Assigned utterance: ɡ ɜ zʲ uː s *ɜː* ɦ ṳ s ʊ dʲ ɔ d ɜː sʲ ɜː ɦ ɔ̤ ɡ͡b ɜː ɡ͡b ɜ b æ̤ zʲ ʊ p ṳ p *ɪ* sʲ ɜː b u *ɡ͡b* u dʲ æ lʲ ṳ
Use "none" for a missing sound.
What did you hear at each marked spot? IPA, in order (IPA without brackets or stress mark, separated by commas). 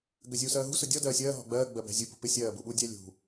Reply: ɜː, ɪ, ɓ